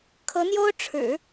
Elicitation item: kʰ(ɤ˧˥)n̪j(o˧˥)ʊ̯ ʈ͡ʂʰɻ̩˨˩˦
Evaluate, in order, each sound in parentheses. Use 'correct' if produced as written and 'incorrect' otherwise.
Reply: correct, incorrect: o˥

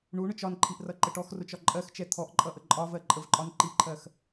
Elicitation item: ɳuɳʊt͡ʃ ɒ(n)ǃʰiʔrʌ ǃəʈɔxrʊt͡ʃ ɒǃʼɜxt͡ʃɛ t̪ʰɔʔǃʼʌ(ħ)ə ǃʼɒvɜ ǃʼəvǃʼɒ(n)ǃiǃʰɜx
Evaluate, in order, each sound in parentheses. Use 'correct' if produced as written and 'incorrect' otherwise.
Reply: correct, incorrect: ʔ, correct

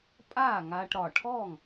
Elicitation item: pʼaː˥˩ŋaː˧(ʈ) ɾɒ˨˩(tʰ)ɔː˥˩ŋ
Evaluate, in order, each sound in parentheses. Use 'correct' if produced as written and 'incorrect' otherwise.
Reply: correct, incorrect: ʈʰ

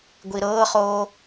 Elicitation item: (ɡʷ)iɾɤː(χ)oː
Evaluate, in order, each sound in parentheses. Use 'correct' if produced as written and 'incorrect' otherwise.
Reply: correct, correct

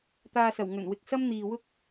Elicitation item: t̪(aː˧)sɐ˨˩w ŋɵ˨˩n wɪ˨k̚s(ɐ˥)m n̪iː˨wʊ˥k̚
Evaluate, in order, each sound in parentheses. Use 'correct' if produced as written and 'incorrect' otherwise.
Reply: correct, correct

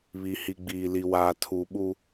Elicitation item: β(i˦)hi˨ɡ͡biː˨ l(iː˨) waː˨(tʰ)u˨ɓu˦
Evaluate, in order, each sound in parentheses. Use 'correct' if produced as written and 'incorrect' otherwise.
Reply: incorrect: i˨, incorrect: i˨, correct

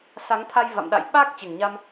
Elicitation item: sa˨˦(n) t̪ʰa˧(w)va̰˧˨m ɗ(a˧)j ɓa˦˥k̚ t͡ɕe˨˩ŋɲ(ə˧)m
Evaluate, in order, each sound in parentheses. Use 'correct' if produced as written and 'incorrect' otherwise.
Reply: incorrect: ŋ, incorrect: j, incorrect: a̰˧˨, incorrect: a˧

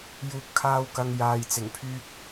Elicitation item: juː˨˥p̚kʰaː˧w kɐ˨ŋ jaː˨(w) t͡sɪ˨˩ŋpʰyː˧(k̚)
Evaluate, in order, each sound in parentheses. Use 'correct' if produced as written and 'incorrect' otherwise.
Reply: incorrect: j, correct

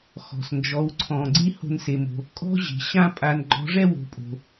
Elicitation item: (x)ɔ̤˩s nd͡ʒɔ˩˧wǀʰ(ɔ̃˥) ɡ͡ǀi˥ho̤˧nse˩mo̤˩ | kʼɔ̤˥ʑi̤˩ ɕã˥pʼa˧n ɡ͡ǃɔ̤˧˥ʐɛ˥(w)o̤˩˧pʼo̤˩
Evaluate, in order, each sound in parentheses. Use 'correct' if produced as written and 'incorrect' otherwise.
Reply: correct, incorrect: ɔ̃˩, correct

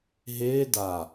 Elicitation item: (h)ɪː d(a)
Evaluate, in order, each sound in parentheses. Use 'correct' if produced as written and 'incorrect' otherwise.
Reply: incorrect: ɦ, correct

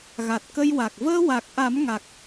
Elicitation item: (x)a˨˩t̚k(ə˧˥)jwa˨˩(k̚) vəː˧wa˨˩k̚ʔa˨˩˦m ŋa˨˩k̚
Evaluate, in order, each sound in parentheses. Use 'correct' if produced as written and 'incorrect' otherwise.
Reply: incorrect: ɣ, incorrect: ə˧, correct

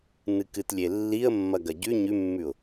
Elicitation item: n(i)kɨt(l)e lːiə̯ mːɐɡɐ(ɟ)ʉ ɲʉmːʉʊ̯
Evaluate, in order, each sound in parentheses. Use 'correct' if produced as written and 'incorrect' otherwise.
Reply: incorrect: ɨ, incorrect: lʲ, correct

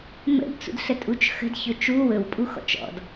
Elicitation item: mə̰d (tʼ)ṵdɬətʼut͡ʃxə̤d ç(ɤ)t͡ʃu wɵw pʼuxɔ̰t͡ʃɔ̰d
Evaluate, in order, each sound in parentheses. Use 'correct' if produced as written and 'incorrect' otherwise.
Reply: incorrect: t͡s, incorrect: ɵ

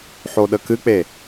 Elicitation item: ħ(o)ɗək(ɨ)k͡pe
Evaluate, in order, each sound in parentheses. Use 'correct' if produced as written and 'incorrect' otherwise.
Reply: correct, correct

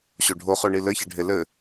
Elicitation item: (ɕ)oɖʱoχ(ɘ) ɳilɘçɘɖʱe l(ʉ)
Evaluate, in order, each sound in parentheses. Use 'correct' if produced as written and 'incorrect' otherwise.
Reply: correct, incorrect: ø, incorrect: ɘ

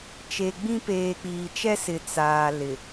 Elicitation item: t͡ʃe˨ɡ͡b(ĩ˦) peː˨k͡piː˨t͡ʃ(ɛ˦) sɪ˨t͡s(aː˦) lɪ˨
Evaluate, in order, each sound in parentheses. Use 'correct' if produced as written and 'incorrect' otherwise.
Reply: correct, correct, incorrect: aː˨

